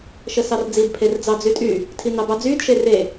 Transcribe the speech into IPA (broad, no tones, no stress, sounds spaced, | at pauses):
ʃ ə s ɑ r d͡z i d pʰ e r d͡z ɑ d͡z y tʼ y | tʰ i n ɑ b ɑ d͡z yː d ʃ e r e